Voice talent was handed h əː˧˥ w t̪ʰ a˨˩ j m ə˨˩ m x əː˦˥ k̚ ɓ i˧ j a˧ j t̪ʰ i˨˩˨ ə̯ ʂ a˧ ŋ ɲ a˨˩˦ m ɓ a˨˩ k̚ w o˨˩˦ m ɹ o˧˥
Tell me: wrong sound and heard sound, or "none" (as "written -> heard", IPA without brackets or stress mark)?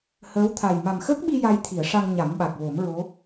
ə˨˩ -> a˨˩